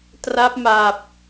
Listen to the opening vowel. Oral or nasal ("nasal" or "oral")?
oral